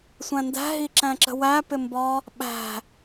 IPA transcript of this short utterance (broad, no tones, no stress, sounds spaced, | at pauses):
sʷ æ̃ n d æ̤ ɦ i ǁ æ̃ ǁ ə̤ w æ p ɪ m b ɒ | ɓ æ̤